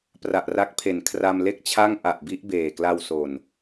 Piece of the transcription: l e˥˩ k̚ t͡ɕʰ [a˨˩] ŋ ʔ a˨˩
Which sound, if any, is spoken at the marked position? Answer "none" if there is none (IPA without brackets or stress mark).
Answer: a˥˩